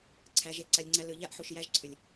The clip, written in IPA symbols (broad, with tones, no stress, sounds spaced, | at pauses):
ǀʰ æ˨˦ ʒ e˧ ǀ a˧ lʲ ŋ͡ǀ æ˦ l ɯ˨ ʎ a˦ ʔ ħ u˨ ʃ j æ˧ ʒ ǀʰ ʏ˨ lʲ